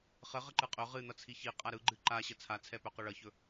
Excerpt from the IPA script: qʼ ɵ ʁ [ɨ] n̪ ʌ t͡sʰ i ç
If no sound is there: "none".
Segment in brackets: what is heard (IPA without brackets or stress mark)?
ɨ